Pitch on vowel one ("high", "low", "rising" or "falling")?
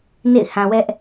falling